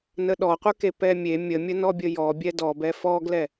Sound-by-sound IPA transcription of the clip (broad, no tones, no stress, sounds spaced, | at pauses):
n ə ɗ ɔ qʷ ə˞ k e p ɛ mʲ e mʲ ə mʲ ə n ɔ bʲ ə j ɔ bʲ ɛ d ɔ b ɛ f ɔ ɡ l ɛ